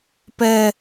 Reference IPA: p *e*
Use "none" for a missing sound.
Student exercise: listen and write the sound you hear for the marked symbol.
ɛ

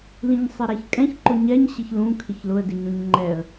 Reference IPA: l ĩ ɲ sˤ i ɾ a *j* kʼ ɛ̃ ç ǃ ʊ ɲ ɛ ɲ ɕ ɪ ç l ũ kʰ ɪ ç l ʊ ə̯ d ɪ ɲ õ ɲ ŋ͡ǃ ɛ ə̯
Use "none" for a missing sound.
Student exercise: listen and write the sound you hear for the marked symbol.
ç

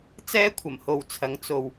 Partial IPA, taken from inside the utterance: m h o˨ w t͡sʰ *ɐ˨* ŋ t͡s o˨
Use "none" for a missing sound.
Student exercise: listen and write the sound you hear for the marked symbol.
ɐ˨˧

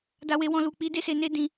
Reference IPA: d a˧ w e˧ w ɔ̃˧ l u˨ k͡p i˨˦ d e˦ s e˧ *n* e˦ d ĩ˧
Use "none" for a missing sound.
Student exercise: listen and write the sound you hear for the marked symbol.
n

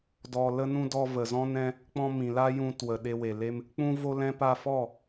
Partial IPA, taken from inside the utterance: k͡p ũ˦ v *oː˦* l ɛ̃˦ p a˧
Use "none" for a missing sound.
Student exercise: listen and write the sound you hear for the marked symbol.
o˦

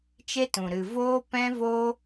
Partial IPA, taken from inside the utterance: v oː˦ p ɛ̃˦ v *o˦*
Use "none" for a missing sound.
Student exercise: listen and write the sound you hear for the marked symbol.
o˦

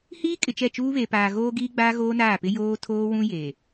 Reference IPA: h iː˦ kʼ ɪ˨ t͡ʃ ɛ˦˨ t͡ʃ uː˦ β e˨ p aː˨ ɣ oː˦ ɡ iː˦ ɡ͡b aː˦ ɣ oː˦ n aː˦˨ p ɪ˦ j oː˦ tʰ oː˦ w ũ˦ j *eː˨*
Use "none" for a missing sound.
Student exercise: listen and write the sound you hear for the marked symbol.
eː˨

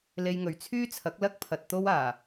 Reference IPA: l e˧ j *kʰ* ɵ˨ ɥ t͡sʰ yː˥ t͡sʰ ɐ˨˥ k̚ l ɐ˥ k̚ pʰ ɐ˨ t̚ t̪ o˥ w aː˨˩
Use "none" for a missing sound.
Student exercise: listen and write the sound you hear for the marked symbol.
ŋ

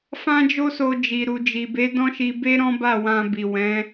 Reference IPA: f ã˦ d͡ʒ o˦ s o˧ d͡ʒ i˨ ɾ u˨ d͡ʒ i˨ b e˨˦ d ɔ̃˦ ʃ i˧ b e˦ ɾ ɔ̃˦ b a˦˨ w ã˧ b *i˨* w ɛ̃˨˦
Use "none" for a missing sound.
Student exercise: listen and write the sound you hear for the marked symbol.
i˨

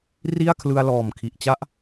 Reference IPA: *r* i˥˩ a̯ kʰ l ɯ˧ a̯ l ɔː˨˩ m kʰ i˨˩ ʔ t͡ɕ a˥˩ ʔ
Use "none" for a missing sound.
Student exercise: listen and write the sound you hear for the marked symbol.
r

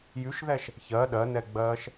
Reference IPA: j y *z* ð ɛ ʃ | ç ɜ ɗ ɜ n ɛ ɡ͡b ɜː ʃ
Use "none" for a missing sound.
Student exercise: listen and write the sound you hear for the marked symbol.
ʃ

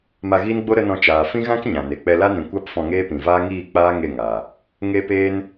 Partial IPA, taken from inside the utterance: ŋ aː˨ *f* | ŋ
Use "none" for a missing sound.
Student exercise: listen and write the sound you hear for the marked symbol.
none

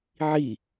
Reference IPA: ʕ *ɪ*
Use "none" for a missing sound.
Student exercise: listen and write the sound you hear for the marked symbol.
i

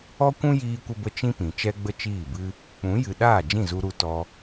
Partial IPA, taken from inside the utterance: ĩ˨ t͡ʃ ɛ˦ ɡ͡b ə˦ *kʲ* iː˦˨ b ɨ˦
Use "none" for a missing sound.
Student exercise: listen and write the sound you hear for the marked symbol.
t͡ʃ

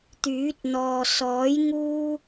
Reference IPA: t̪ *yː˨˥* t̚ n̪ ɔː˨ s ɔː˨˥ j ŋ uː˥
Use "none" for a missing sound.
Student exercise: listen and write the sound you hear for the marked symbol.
yː˨˥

